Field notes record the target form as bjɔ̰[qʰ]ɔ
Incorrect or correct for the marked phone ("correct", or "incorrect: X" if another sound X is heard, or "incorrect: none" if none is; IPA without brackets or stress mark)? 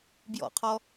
correct